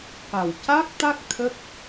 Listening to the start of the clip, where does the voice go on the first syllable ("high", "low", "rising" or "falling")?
low